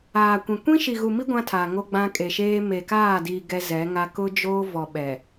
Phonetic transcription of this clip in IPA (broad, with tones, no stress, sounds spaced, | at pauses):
aː˨ kʷ ĩ˨ kʷ ĩ˦ ʃ i˨ ɣ u˨ m i˦ ɡʷ ã˦ tʰ a˨ ŋ o˦ ɡ͡b ã˦ kʼ e˨ ʃ eː˦ m e˨ k aː˦˨ d i˨ ɡ ɛ˦ z ɛ˨˦ ŋ a˦ k ʊ˦ d͡ʒ oː˦ v ɔ˨ ɓ ɛ˨